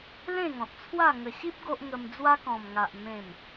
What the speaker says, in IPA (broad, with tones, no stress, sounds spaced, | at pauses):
l ẽ˥˧ ŋ ɔ̃˨ t̚ t͡sʰ w a˥˧ ŋ ə˨˩ ɕ i˦ p̚ ɡ o˦ ʔ ŋ ə˧ m d͡z w a˦ k ɔ̃˨˩ m ŋ a˨ ʔ m ẽ˨˩ m